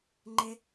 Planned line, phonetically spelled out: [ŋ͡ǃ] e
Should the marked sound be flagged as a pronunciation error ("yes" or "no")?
no